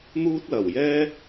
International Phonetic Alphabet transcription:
n̪ uː˥ t̚ l ɐ˨˩ w j ɛː˥

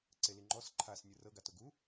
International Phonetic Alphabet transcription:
ǀ e l i ŋ͡ǃ ɔ s ǃʰ a s nʲ ɯ r ɤ ɡ a t o ɡ u

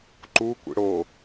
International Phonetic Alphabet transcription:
ǃ u kʷ ḭ ɽ o

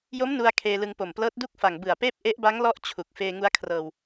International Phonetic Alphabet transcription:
j o˦˥ m n u˧ a̯ kʰ eː˧ l ɯ˧ ŋ p o˨˩ m p l ɤː˦˥ t̚ d u˥˩ k̚ f a˨˩ ŋ b ɯ˨˩ a̯ p eː˦˥ p̚ ʔ e˦˥ ʔ b a˦˥ ŋ l ɔ˦˥ ʔ t͡ɕʰ u˨˩ k̚ f eː˧ ŋ u˧ a̯ kʰ r ɤː˧ w

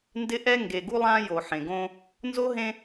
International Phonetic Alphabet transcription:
n d ɪ˦ ʔ ɛ˦ ŋ ɡ e˨ ɡ u˦ lˠ ã˦ j o˨ ħ ẽ˨ ɡ õ˦ | n z o˦ ɦ ẽ˦

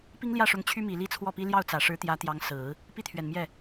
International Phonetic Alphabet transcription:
p i˥ ŋ l j ä˥˩ ʂ ʊ˧˥ ŋ t͡ɕʰ y˥ m i˨˩ l i˥ t͡sʰ w ɔ˥˩ p i˥ l j ɑ˥˩ ʊ̯ t͡s ä˨˩ ʂ ɻ̩˧˥ t̪ j ä˧˥ t̪ j ɑ˧˥ ŋ s ɹ̩˨˩˦ | p i˥˩ t̪ʰ ɥ ɛ˨˩ n m j ɛ˥˩

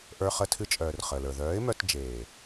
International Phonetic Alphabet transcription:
ʔ ə˞˧ χ ə˧ tʰ ɨ˧ t͡ʃʼ œː˨ r χ əː˨ l ə˞˨ ð œː˨˦ ɪ̯ m œ˧ t d͡ʒ eː˨

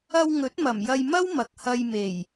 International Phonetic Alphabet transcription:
ɐ˧ w ŋ ɵ˨˥ t̚ m ɐ˨˩ m j ɐ˧ j m ɐ˥ w m ɐ˨ k̚ h ɐ˧ j m e˨˩ j

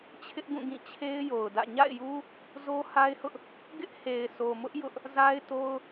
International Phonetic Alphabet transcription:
t͡ɕʰ ɪ˦ ʔ ɡ ũ˦˨ ɡ ĩ˦˨ t͡ɕʰ e˦ ɪ̯ j o˨ ʊ̯ d ä̰˦˨ ɲ a̰˦˨ ɪ̯ j u˦ | z o˦ h a˦ ɪ̯ h ʊ˦ ʔ | ɡ ɪ˦ ʔ h e˨ ɪ̯ sʰ o˨ m ʊ˦ ʔ j ʊ˦ ʔ | z a˦ ɪ̯ t o˦ ʊ̯

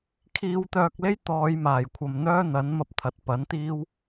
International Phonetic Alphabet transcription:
kʰ iː˧ w t̪ œː˧ k̚ l e˥ j t̪ ɔː˨˧ j m aː˨˩ j kʷʰ ɐ˨ m n̪ œː˥ n̪ ɐ˨˥ n m ɐ˧ p̚ t̪ʰ ɐ˨˥ t̚ p ɐ˨˥ n t̪ iː˥ w

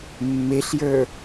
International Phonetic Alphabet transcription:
mː e ɬ j ə˞

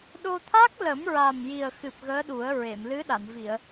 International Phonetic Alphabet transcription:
ɗ o˧ t̪ʰ a˦˥ k̚ l ə˨˩˦ m ɹ a˨˩ m j i˨˩ ə̯ x ɨ˨˩ p̚ ɣ əː˧˥ ɗ u˨˩˦ ə̯ ɹ e˨˩˨ m l ɨ˧˥ ɗ a˨˩˨ n v i˨˩˨ ə̯

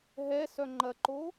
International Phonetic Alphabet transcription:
ɦ ɛ s œ ŋ͡ǃ ɐ ǃ o

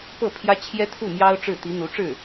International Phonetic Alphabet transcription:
p ɤ˥˩ pʰ j ä˥ t͡ɕʰ j ɛ˥ t̪ʰ u˥˩ m j ɑ˥ ʊ̯ ʈ͡ʂ ɻ̩˥˩ t̪ i˧˥ n̪ u˧˥ ʈ͡ʂ ɻ̩˥˩

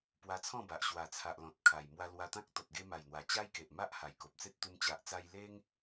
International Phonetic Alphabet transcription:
p w a˧ t͡sʰ ɔ̃˥˧ b a˨ ʔ ɕ w a˨˩ t͡sʰ a˨ ʔ l ɔ̃˨ t̚ kʰ a˨˩ j m w a˧ l w a˧ t̪ ã˦ k̚ t̪ ɔ˨ t̚ ɡ e˧ m a˨˩ j n̪ w a˨˩ t͡ɕ a˦ j k e˨ ʔ m a˦ ʔ h a˨˩ j k o˨ p̚ t͡s e˦ t̚ t̪ u˧ m t͡ɕ a˨ ʔ t͡s a˧ j l e˦ ŋ

